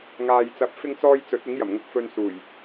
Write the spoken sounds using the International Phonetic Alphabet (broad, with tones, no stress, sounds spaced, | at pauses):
ŋ aː˨ j t͡s ɐ˨ p̚ f ɪ˧ ŋ t͡s ɔː˧ j t͡s ɵ˨˥ t̚ ɪ˨˥ ŋ j ɐ˨˩ m ŋ ʊ˧ k̚ f ɵ˧ n s uː˨˩ j